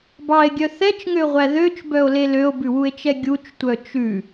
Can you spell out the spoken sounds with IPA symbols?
b ɑ e̯ ɡʲ œ θ ɛ t͡ʃ ŋ ø ʁʷ æ ð ø t͡ʃ b œ o̯ l e l ø o̯ b ʉ w u e̯ t͡ʃ ɛ ɡʲ u t͡ʃ tʷ œ t͡ʃ ʉ

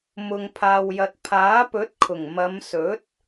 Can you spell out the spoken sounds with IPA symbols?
m ʊ˨ ŋ pʰ aː˨ w j ɐ˨ t̚ pʰ aː˨˥ p ɵ˨˥ t̚ kʰ ʊ˨˩ ŋ m ɐ˨˧ m s ɵ˨˥ t̚

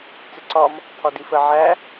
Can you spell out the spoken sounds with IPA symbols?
t͡s ɪ ǀ ɒ m | t̪ʰ ɒ d i f ə ʕ æ

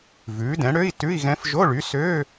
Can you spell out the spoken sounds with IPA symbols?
v ʉː˩˥ d ɛ̃˩˥ ɽ ø˧˥˧ i̯ t ʉ˧˥˧ i̯ ɣ ɛ̃˧˥ f ʒ o˧˥˧ ɭ y˩˥ s øː˧˥˧

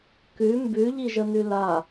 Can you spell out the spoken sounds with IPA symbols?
k ʉ m b ʉ ʎ i ʒ ə n ʉ l a

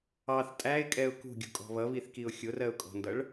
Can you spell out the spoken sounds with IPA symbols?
ɑ θ tʼ æ ɪ̯ kʼ ɛ ʊ̯ k ṳ ɡʲ ṳ kʼ ɔ̤ β ʌ β i θ k i ʊ̯ xʲ ʊ r ɜ ʊ̯ kʼ ɔ̤ n d ʌ ɭ

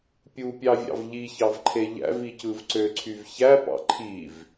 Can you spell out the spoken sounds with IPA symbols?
pʲ u pʲ ɑ vʲ ɑ̰ v ʎ i ç ɑ v ǃʰ e ʎ æ̰ v i c ɯ v ǀ ø ǀʰ y v ç æ p ɑ̰ ǃʰ i v

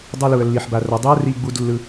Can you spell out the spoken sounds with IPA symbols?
dˤ ʌ˦ l u˨ ə̯ lː i˨ ħ b a˨ r ʌ˨ dˤ i˦ ə̯ r i˧ ɡ͡b u˧ d lː ɯ˦

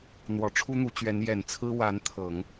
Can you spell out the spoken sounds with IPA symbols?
n̪ w ɔ˨˩ ʈ͡ʂʰ u˥ n̪ u˧˥ t͡ɕ ɥ ɛ˧˥ n j ɛ˨˩ n t͡sʰ ɹ̩˥ w a˧˥ n t̪ʰ ɤ˨˩˦ ŋ

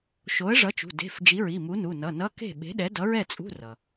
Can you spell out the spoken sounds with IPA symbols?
ʃ o˨˥ ə̯ ʐ ʌ˨˥ t͡ʃ ṳ˩˧˩ d e̤˩˧˩ f d͡ʒ i˨˥ ɹ i˩˧˩ m u˨˥ n u˩˧˩ n ʌ˩˧˩ n ʌ˧˥˧ k e̤˥˨ ɓ e̤˨˥ ɗ ɛ˨˥ d ʌ˨˥ ɹ ɛ˥˨ t͡sʼ ṳ˧˥˧ r ʌ˩

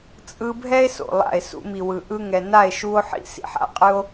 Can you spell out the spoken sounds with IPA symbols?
t͡sʼ ɯ˧ bʱ ɛ˦ e̯ s o̰˨ lˠ a̰˦˨ e̯ s ṵ˧ m i˨ w ɯ˨ ʔ ɯ˧ ŋ ɛ˨ n a˦˨ e̯ ʃ u˦ o̯ ħ ḭ˦ s ḭ˨ ħ a̰˦ qʼ ɯ˦ o̯

